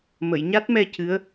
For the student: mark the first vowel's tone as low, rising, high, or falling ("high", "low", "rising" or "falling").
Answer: low